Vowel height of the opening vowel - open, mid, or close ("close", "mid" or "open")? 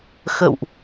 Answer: mid